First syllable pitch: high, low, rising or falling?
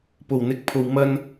low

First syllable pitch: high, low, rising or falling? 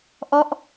falling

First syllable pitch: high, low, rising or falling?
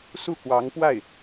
falling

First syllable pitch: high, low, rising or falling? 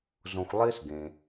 low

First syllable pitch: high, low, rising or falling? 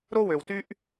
high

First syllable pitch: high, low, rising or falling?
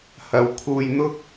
low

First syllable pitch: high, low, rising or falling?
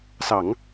low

